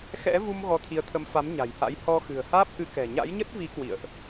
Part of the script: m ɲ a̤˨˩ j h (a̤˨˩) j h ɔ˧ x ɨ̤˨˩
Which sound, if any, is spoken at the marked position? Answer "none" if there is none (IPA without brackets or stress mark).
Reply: a̰˧˥